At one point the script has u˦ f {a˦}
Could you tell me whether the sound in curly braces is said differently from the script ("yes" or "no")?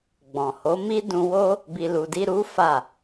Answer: yes